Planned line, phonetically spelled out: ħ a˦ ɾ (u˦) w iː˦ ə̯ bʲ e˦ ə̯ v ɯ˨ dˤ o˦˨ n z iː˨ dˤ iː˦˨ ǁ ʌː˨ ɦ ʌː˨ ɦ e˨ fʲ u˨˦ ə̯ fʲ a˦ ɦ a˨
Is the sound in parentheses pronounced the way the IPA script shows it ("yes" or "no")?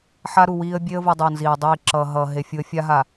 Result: no